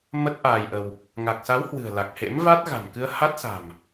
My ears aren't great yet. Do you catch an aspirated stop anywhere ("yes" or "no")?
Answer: no